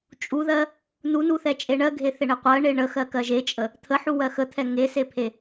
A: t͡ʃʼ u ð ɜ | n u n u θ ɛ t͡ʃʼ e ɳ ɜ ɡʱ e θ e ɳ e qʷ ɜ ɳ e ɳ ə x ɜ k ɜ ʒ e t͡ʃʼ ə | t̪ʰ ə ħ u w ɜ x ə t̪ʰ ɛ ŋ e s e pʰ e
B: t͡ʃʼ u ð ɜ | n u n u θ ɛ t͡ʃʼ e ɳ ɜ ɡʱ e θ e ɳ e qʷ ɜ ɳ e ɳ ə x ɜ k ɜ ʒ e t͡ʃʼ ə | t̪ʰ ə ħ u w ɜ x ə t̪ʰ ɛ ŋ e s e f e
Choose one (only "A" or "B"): A